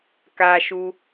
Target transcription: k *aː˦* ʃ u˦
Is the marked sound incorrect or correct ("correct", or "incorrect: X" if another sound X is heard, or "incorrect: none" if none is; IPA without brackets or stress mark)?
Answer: correct